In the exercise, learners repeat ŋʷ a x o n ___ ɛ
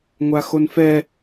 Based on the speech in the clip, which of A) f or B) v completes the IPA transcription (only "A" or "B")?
A